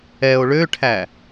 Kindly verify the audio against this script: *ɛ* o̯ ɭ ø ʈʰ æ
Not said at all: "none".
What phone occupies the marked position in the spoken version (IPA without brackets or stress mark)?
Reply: ɛ